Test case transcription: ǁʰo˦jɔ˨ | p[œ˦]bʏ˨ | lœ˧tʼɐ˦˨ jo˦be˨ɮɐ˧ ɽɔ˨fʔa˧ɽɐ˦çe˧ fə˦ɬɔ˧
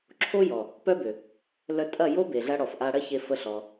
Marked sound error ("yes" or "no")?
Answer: no